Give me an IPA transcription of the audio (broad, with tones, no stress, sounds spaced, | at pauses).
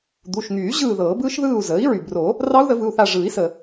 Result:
d̪ u˩˧˩ ʃ ŋ yː˨˩˦ ʑ ɯː˦˨ ð ɤː˨˩˦ b ɯː˦˥ ʃ ð ɯː˦˨ u̯ z əː˩˥ i̯ ɹ y˩ b r o˨˩˦ | r ɑ˦˥ u̯ ð ə˨˩˦ v ɯ˩˧˩ u̯ θ a˦˨ ʐ ɯː˨˩˦ i̯ s əː˩